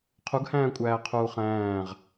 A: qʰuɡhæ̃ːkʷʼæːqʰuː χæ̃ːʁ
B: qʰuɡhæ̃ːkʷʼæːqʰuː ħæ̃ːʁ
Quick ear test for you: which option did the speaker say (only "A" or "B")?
A